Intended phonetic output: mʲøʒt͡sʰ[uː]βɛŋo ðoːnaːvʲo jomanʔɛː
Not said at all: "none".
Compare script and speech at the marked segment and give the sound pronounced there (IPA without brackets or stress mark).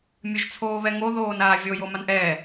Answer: oː